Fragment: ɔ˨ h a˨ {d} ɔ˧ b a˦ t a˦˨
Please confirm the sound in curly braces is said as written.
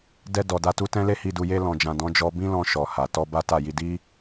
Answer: no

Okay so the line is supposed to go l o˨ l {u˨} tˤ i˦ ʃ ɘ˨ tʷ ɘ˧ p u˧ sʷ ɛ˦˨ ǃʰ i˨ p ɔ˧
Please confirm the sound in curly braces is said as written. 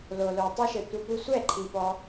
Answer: no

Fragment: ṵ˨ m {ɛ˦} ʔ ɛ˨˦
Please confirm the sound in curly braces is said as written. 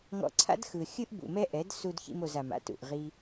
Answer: yes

